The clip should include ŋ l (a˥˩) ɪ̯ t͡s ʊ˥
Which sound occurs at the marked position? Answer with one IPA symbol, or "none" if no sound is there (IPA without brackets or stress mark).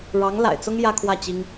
a̰˨˩